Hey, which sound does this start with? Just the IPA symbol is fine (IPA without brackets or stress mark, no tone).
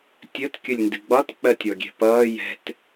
tʲ